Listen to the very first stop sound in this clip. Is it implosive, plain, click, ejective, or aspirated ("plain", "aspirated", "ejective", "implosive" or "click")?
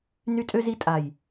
ejective